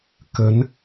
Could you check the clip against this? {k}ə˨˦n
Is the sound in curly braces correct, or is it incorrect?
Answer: correct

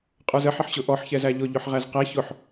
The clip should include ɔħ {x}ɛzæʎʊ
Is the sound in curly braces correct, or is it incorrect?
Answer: incorrect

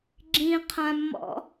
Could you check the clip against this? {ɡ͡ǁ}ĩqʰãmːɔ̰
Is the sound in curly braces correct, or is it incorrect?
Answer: correct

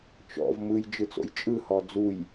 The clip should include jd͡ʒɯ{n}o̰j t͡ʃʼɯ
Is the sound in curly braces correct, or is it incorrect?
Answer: incorrect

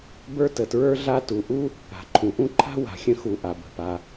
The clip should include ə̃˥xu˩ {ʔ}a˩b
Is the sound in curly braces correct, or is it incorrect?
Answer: correct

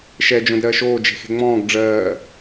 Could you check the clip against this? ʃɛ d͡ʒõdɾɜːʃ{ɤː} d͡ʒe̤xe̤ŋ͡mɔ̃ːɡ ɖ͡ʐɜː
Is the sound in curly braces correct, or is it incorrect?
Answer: incorrect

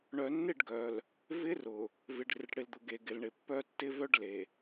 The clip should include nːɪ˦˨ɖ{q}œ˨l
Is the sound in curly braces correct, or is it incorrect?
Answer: incorrect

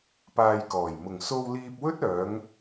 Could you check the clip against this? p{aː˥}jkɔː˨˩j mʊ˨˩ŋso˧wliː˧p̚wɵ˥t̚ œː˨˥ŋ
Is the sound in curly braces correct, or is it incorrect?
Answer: incorrect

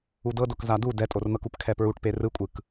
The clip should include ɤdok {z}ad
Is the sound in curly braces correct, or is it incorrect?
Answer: correct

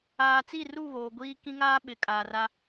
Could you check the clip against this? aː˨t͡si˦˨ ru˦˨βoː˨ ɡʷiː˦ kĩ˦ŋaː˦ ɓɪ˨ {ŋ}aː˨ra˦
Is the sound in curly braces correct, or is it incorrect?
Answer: incorrect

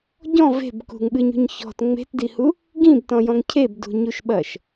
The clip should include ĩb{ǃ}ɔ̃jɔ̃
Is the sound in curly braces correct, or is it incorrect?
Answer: incorrect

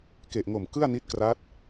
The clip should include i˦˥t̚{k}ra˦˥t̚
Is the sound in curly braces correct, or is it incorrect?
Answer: correct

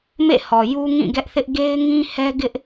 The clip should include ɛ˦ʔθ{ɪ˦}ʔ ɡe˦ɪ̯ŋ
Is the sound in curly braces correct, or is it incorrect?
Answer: correct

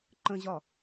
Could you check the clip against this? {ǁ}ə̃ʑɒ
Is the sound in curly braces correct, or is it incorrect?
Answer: incorrect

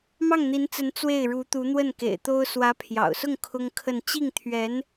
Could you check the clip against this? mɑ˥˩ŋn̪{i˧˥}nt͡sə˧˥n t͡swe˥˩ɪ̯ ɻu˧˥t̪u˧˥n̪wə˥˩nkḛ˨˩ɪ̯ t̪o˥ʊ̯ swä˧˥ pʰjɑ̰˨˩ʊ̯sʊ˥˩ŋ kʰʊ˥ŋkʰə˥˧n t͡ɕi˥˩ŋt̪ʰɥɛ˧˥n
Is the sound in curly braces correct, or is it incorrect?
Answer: correct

